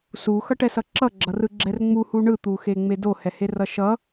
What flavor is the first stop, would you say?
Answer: plain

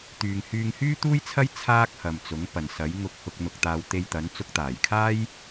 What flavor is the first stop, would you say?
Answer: plain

